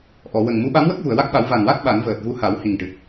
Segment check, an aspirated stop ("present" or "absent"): absent